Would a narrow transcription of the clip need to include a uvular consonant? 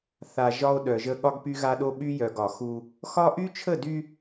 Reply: no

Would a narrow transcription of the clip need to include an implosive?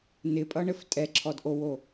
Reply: no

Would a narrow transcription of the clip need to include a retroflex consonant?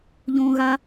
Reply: no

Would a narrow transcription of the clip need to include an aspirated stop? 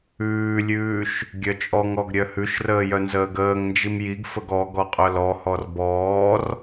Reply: no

